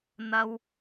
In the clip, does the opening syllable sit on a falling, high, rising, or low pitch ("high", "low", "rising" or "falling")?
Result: low